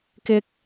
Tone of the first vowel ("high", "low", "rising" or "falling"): rising